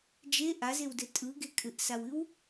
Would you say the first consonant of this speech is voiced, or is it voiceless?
voiced